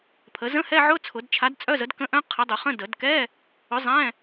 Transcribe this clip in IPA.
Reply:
pʰ ə˨˥ z ə̃˧˥˧ h ɛ˧˥˧ ʕ ʊ˧˥˧ t͡sʰ ʊ˨˩˦ d t͡ʃʰ a˨˥ d t͡sʼ œ˧˥˧ z ə˨˥ d k ə̃˧˥˧ ʔ œ̃˧˥˧ qʰ ə˨˥ dˤ ʊ˨˩˦ χ ə̃˧˥˧ d ə˨˩˦ d k ɛ˧˥˧ | ʊ˨˥ zˤ ɛ̃˧˥˧

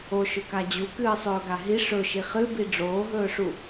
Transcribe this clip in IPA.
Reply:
o ʃ ɵ k a d͡ʑ u k ɨː sˤ ɵː ɡ a ɦ i ʂ ɵ ʃ i χ ɨ b i ɖ͡ʐ oː ɦ ɵː ʂ u

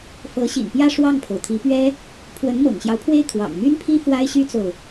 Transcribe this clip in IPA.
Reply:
f ɤ˧˥ ɕ ḭ˨˩ n p j ä˥˧ ʂ w ɑ˥˩ ŋ pʰ o˩ ʊ̯ t̪ʰ i˧˥ p ɥ ɛ˥ | pʰ w ə˧˥ n m ɤ̰˨˩ ŋ ɕ j ɑ˦ ʊ̯ pʰ w e˥˩ ɪ̯ kʰ w ɑ̰˨˩ ŋ m y˥ n pʰ i˥ f w a˥ ɪ̯ ɕ y˥ t͡s o˨ ʊ̯

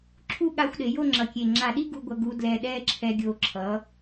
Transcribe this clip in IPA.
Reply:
ǁʰ u˥˧ ɠ a˧ xʷ ɗ e˩˧ j o˥˧ ŋ͡ǁ ʌ˧˩ kʲ e˧˩ ŋ͡ǁ a˧˩ ɗ i˥ ɡ u˧ ɡʷ ʌ˧ ɡ u˧ d l ɛ˧˩ ɗ ɛ˥˧ ǁʰ ɛ˧ ɡʲ o˧˩ ǁʰ ʌ˩˧

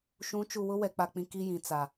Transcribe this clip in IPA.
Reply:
ʃ ũ˨˦ t͡ʃ u˨ w ʊ˦ w ɛ˨ k͡p a˨ k͡p ĩ˨ k i˦ j ĩ˨ t͡s a˨

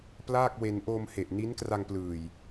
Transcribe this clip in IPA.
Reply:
p l aː˥˩ k̚ w e˧ n ʔ oː˧ m h e˨˩ ʔ n i˦˥ n k r a˧ ŋ p l ɯː˨˩ j

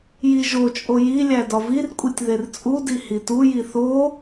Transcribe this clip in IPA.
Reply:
j i ʒ o t͡ʃʼ o j i lʲ æ d ɒ v i r kʷʼ i tʲ ð e r t͡sʼ u d i h i t u j i θ o

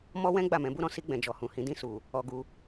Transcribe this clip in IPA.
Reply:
m ɔ˦ w ɛ̃˦ ɡ͡b a˦˨ m ɛ̃˨˦ b u˦ ɾ ɔ̃˦ s i˧ ɡ͡b ɛ̃˨ d͡ʒ ɔ˨ h ũ˨ h ĩ˨˦ d ĩ˦˨ s u˨ | ɔ˧ ɡ u˧

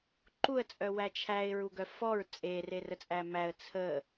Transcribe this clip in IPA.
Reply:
ǃ u ə̯ t͡sʼ œ w æ t͡ʃʰ æ ɪ̯ ɹ u ɡ œ f ɔ ɹ t͡sʼ e r e r ə t͡sʼ æ m æ ə̯ t͡sʰ ə

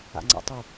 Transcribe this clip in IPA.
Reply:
a̰ ŋ͡ǀ a̰ tˤ y

